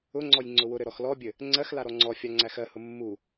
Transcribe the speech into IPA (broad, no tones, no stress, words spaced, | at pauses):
ʊŋ͡ǀɔj ŋ͡ǀʊwʊɾɘ ɾɔxlɔbʲɘ | ŋ͡ǀɜxla ɾɔŋ͡ǀɔfʲa ŋ͡ǀæxɜhʊ mːu